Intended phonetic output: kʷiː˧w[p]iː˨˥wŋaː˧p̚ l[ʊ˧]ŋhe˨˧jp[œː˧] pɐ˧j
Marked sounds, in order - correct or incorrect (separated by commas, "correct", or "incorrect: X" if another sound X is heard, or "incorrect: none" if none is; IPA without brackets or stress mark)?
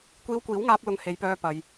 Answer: incorrect: kʷ, correct, correct